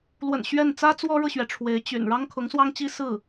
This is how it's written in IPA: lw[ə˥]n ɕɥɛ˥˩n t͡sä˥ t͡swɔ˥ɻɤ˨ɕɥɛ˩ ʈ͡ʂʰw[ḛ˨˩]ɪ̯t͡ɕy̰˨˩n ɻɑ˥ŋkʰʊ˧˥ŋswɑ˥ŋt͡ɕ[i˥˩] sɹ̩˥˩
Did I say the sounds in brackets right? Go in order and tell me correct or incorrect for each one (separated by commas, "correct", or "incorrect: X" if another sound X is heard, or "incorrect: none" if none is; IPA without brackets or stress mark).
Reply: incorrect: ə̰˨˩, incorrect: e˧˥, incorrect: i˥